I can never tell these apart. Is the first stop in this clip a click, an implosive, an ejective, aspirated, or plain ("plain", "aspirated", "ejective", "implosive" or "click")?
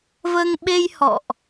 implosive